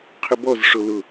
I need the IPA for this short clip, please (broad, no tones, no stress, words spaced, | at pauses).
qʰʏbɔzʂo lʊ